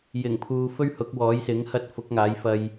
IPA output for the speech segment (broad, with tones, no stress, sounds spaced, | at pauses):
j ɪ˨˩ ŋ pʰ uː˨ f ɵ˥ ɥ h ʊ˨˥ k̚ w ɔː˨˥ j s ɪ˨˥ ŋ h ɐ˥ t̚ f ʊ˨˥ k̚ ŋ aː˨˥ j f ɐ˧ j